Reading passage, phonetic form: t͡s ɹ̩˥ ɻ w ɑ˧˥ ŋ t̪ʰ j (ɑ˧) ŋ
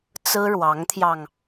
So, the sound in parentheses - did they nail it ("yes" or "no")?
yes